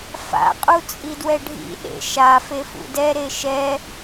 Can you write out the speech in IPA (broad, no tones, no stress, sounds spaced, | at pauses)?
f a̰ qʼ u t͡sʼ i d w ɛ ɖʱ ḭ ɗ ḛ ʃ a f e f ṵ d ɛ ɾ e ʃ ɛ